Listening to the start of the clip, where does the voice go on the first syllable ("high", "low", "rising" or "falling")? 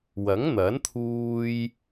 rising